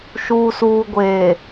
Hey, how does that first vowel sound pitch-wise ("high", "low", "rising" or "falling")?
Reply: low